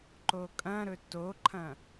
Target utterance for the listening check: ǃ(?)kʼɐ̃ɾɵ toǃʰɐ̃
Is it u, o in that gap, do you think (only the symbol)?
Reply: o